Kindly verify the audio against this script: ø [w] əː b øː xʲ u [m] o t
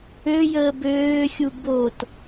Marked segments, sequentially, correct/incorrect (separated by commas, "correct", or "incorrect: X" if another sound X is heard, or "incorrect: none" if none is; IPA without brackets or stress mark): incorrect: j, incorrect: b